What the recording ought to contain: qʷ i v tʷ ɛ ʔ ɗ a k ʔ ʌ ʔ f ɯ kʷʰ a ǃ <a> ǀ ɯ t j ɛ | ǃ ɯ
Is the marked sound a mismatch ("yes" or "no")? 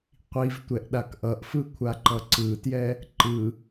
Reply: yes